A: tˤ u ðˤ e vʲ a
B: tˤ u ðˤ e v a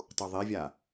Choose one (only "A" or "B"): A